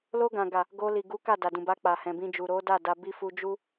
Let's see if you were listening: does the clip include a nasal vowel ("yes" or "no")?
yes